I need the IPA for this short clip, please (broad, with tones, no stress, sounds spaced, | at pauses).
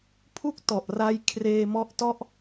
pʰ u˥˩ k̚ t ɔ˨˩ ʔ r a˧ j kʰ r eː˧ m ɔ˦˥ ʔ t ɔ˦˥ ʔ